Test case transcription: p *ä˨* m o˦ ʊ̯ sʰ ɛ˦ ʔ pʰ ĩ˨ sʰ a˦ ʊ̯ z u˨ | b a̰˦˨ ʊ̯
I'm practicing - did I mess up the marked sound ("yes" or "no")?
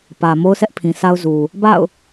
no